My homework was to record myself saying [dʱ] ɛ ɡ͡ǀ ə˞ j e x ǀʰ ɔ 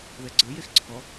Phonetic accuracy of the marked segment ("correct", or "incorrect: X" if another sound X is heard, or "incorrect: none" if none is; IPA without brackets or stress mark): incorrect: ð